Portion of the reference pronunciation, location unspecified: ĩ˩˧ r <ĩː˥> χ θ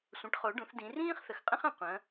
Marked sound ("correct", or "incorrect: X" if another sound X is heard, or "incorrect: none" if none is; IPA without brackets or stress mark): correct